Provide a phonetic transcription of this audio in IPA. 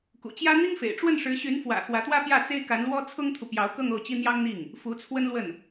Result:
k ṵ˨˩ t͡ɕ j ä˥ n̪ i˥ ŋ f ḛ˨˩ ɪ̯ ʈ͡ʂ w ə˥˩ n ʂ ɻ̩˧˥ ɕ y˧˥ n f w ä̰˨˩ x w ä˧˥ t̪ w ä˥ p j ä˥˩ t͡s e˥ ɪ̯ k a˧˥ n l w ɔ˥ t͡sʰ ʊ˥ ŋ t̪ʰ u˨ p j ɑ˧˥ ʊ̯ k ɤ˥˧ ŋ o˥˩ ʊ̯ t͡ɕ i˥ n̪ j ɑ˥ ŋ n̪ i˥˩ ŋ | f u˧˥ t͡sʰ w ə˥ n l w ə˥˩ n

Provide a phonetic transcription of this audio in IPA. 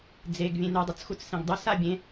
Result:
d͡z e ɡ vʲ ẽ n u dˤ ʊ t͡s x u t͡s s ẽ ɡ dˤ u s a bʲ ẽ

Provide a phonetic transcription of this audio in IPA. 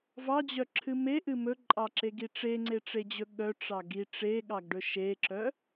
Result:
v ɑ d͡ʑ œ ǁʰ ɨ m e ʔ ɨ m ɵ ǃʼ ɑ ǁ e ɡ i ʈ͡ʂ e ŋ͡ǀ e ʈ͡ʂ e d͡ʑ ɵ ɠ œ ʈ͡ʂ ɑ ɡ i ʈ͡ʂ e ɠ ɑ ɡ ɖ ɵ ʃ e ǁ œ

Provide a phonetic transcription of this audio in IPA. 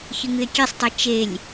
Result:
ç ɨ ŋ ɨ e̯ kʲ e sˤ tˤ e t͡ʃ e lʲ

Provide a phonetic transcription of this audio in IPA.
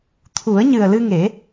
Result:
t̪ʰ u˨˩˦ ə̯ ɲ ɨ˨˩ ə̯ l ɨ˧ ŋ e˨˩˦

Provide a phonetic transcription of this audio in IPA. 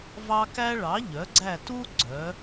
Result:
v ɑ˦ k æ˦ ɭ ɑ˩˥ ʎ œ˩˥ ɡ͡ǀ æ˦˨ t u˦ ɡ͡ǀ œ˩˧

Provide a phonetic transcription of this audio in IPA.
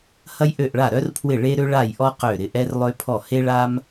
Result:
h ɐ˥ j ʔ ø˥˨ ʔ ɭ a˥˨ ɾ œ˥ r pʰ w ɪ˥˨ ɭ e˥ ɾ ø˥ ɭ a˥˨ j ʔ ɔ˥ q ø˥˨ ɾ ɪ˥˨ ʔ ɛ˥ r lˠ ø˥ pʰ ɔ˥˨ h e˥ ɭ a˥ m

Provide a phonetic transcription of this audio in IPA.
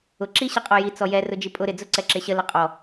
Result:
ʊ ǁ i ɕ ə qʼ ɔ j i t͡s ɔ j ɛ r ʊ d͡ʒ i pʼ ʊ ɾ ɪ d͡z ʊ ǀ ɛ ǁ ɪ ɕ ə l ə qʼ ɔ

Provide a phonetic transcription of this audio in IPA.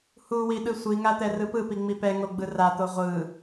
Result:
h u w i ɗ ɯ sʷ i ŋ a t̪ ɛ r ɯ p ɯ p i ŋ͡m i p ɛ ŋ o ɡ͡b ɯ r a t̪ o ʁʷ ɯ

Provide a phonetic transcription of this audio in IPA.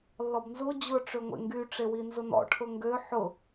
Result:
lː ɔ b n z o d͡ʑ ʊ ʈ͡ʂ ø ŋʷ ḛ ŋ ɡ y ʈ͡ʂ e w i n z ʊ n ɔ̰ ʈʰ ʊ ŋ ɡ ø ħ ʊ

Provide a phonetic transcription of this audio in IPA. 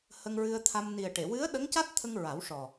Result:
h ə˧ ŋ ɹ ɨ˧ ə̯ t̪ʰ a˧ m n i˨˩ ə̯ ʈ e˨˩˨ w ɨ˧˥ ə̯ ɗ ə˧˥ ŋ c a˦˥ t̚ t̪ʰ ə˧ ŋ ɹ a˨˩˦ w ʂ ɔ˨˩

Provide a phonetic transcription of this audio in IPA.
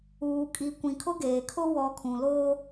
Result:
uː˨ kʼ i˨ kʷ ĩ˨ kʰ ʊ˦ ɡ eː˨ kʰ ʊ˦ w ɔ˨ kʰ ũ˨ l oː˦

